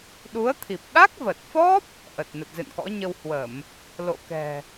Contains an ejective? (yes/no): no